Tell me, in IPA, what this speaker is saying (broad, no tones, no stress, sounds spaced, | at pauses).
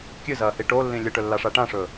kʲ ɨ z ɐː h i ʈ o lː ĩ lʲ ɨ ʈ ɵ lː a ʂ a ʈ ã ʂ ɵː